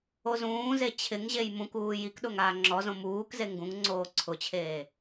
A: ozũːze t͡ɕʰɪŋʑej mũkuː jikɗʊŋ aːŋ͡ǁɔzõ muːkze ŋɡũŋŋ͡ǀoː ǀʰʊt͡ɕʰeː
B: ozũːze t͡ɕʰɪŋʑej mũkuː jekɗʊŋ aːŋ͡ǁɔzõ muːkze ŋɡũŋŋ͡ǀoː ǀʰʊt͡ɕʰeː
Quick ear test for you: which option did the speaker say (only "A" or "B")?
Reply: A